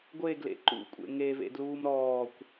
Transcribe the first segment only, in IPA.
ɡʷ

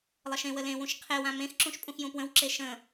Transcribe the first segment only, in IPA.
lˠ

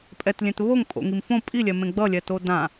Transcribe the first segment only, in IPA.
pʼ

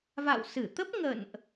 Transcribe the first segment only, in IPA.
v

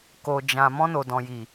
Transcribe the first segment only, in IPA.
k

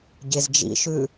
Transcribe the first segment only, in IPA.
ɟ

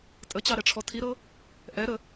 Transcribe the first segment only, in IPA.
tʼ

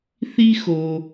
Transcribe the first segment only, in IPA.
θ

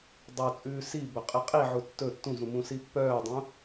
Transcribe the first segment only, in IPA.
dˤ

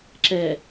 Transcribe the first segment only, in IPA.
ǁ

